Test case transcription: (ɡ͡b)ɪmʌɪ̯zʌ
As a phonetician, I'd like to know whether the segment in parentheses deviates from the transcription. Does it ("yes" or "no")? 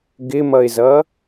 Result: yes